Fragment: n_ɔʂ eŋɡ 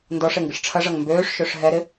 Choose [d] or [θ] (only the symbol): d